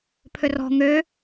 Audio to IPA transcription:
pʰ ø r ɔ̤ ŋ ø

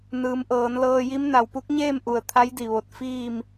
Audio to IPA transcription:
n ɯː˩˧ m ʔ ɤː˩˧ n l ɤː˧ j i˧˥ m n a˩ w p u˧˥ k̚ ɲ eː˥˨ m ʔ u˩ ə̯ t̪ʰ a˧˥ j d i˧˩ ʋ o˧˩ t̚ f iː˥˨ m

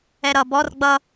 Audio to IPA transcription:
ɛ ɾ ʌ b ɔ r ɡ͡b ʌ

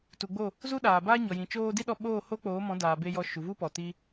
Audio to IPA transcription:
t u˨ ɡ͡b o˦˨ | z u˦ ɗ aː˨ b aː˦ ɲ ɔ˨ j ĩ˨ t͡ʃ oː˧ d i˦ ɗ ɔ˧ ɓ oː˦˨ h o˦ k͡p oː˨˦ m ɔ̃˨˦ d aː˨ b e˧ j ɔ˧ ʃ u˨ v u˦ p ɔ˨ t i˦

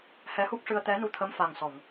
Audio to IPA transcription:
h ɛ˧˥ h u˦˥ k̚ ʂ ɨ˧ ə̯ t̪ ɛ˧˥ n u˧ t̪ʰ ə˧˥ m f a˨˩ ŋ s ɔ˨˩˨ ŋ

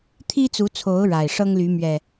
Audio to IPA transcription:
t̪ʰ i˦ t͡s u˨˦ t͡sʰ o˨˦ ʊ̯ ɻ a˨˩ ɪ̯ ʂ ɤ˦ ŋ l y˨˦ m ɥ ɛ˨˩

